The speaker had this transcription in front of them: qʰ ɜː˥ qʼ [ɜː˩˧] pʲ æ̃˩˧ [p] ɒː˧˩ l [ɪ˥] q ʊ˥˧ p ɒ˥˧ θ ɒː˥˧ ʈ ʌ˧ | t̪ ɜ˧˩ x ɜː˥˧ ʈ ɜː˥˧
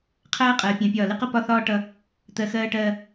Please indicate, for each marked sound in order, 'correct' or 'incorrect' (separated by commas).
correct, incorrect, correct